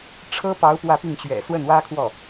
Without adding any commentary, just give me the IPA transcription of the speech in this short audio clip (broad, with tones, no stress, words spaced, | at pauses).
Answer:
ʈ͡ʂʰɤ˥pɑ˧˥ʊ̯ pwä˥˧pi˥˩ŋt͡ɕɥɛ̰˨˩ swə˥˩nwä˥kʰwɔ˥˩